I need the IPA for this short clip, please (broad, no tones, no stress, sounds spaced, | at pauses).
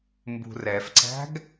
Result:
m b ṳ r ɛ f ǀ æ̤ ɡ